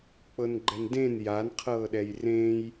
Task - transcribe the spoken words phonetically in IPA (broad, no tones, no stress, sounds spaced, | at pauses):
k͡p ɤ n ɡ͡ǃ ɛ n d ẽ n j a n qʰ ɤː ɗ ɛ j r ẽ j